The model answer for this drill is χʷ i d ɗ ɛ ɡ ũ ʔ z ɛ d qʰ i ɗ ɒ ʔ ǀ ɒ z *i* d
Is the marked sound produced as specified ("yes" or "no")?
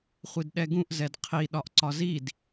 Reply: yes